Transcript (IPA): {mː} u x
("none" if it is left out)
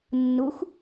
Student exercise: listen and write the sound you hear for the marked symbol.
nː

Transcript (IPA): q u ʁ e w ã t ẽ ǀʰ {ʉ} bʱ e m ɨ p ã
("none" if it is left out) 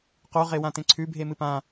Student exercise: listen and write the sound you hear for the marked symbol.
ʉ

